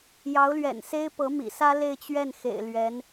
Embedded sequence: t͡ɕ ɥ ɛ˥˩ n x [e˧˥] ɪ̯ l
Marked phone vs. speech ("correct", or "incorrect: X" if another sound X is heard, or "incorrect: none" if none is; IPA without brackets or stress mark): incorrect: ḛ˨˩